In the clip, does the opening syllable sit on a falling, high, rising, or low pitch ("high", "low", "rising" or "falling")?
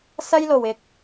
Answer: high